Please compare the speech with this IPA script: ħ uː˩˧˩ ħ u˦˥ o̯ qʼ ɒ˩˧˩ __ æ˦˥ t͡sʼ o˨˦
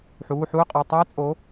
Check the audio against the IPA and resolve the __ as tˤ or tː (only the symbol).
tˤ